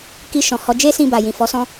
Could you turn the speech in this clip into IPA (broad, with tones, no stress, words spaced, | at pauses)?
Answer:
ki˧ʃɔ̃˨hɔ˨˦ d͡ʒe˦sĩ˧ba˨ jĩ˨fɔ˨˦sɔ̃˦